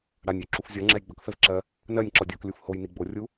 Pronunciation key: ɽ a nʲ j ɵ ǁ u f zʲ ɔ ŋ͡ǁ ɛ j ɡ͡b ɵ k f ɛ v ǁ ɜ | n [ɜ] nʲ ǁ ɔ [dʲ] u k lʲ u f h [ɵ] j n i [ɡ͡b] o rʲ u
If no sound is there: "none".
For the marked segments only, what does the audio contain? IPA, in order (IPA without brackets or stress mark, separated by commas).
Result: ɜ, dʲ, o, ɡ͡b